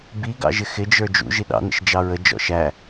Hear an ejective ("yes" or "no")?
no